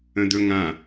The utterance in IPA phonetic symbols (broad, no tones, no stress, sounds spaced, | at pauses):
ə̃ d̪ ɵ ŋ ã